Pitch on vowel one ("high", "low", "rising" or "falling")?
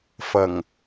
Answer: low